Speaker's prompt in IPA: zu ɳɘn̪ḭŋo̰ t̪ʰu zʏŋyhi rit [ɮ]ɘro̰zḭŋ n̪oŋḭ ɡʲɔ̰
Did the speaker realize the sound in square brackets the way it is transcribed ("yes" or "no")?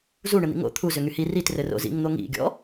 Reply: no